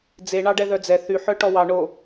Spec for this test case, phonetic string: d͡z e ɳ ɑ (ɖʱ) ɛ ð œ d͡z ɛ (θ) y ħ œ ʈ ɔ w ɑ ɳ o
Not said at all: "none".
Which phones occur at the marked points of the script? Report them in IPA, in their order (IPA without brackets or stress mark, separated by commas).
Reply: ɖ, θ